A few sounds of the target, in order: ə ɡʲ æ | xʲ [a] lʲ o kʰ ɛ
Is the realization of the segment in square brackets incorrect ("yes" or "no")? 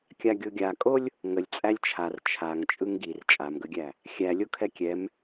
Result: yes